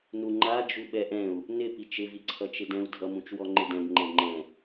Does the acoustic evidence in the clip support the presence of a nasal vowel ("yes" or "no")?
yes